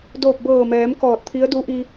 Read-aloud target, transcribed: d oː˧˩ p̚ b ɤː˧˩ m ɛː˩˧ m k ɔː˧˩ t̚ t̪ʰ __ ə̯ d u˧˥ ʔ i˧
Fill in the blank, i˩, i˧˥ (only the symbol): i˧˥